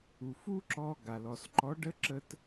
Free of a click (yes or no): no